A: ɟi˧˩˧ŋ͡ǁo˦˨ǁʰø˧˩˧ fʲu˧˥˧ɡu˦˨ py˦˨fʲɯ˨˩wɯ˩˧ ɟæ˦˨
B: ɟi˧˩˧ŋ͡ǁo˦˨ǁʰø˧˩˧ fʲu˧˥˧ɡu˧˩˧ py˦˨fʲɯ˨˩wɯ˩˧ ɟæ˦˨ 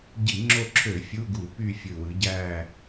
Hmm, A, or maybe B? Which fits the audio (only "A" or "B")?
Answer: B